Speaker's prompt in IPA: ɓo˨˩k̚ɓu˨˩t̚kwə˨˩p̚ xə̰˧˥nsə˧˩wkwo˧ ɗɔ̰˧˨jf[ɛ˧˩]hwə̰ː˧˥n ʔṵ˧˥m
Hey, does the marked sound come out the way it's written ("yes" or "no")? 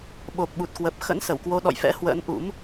no